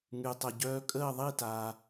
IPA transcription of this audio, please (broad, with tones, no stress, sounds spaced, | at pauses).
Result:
ŋ y˩ tˤ ʊ˩ ɟ œː˧ kʼ əː˥˩ ðˤ i˥˩ t aː˩